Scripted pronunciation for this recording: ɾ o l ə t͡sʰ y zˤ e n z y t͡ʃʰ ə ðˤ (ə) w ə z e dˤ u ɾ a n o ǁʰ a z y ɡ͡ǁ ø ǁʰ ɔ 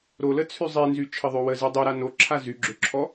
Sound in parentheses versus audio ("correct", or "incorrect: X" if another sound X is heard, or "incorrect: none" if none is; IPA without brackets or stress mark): incorrect: ø